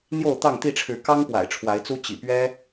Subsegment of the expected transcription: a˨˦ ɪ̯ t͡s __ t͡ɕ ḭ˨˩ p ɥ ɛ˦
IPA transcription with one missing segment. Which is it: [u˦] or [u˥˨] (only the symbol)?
u˦